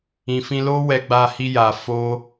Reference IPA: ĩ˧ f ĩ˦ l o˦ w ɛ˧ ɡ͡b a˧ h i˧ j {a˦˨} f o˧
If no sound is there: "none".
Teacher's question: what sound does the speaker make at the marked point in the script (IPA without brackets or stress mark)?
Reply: a˨